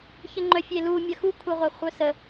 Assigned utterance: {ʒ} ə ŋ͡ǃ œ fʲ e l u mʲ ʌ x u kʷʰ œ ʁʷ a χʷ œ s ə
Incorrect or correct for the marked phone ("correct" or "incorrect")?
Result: incorrect